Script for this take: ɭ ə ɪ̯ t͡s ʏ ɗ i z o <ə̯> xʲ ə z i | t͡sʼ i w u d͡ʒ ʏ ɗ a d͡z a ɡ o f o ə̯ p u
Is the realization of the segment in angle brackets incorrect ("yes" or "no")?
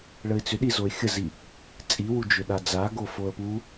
yes